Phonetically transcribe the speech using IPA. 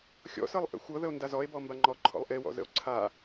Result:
xʲ ɔ̰ s ɤ lˠ ʔ ə̰ xʷ ɤ ð ə o̯ n d a z ɔ e̯ b ɔ m b a ŋ͡ǃ ɔ ǃʰ ɔ̰ lˠ ʔ e w ɔ̰ z ə̰ o̯ ǀʰ a

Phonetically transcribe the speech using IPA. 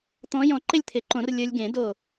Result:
t̪ ɔ̃˧˥ j ɔ̃˧˩ ǃ ɪ˥˨ lʲ t̪ʰ ɪ˨˩˦ ǃ õ˨˩˦ r lʲ ə˞˧ lʲ ɡ ẽ˨˩˦ d o˧˩

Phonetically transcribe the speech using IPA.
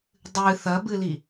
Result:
dˤ ɨ θ ɐ b ɨ l i

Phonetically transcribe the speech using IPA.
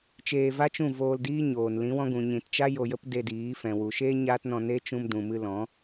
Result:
t͡ʃ eː˧ v a˦ t͡ʃ ũ˦˨ v oː˧ l d iː˦ ɲ oː˨ n l ĩ˨˦ w ɔ̃˧ ɡ ũ˨ ɲ ĩ˨ t t͡ʃ a˦ j o˧ j ə˦ p d e˧ d iː˨˦ f ɛ̃˨ w u˨ ʃ e˦ ɲ aː˦ t n ɔ̃˧ n e˦ t͡ʃ ũ˧ m d ũ˨ m ɨ˧ l ɔ̃˨˦

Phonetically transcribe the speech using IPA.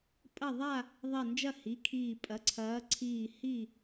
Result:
pʼ ɐ˥˨ ðˤ a˥˨ | ðˤ ɛ˧˩ n d͡ʒ ɐ˥˨ h i˩˧˩ kʰ iː˧˩ pʼ ɐ˩˧˩ ǀʰ ɐː˨˦ ǀʰ iː˧˩ h i˥˨

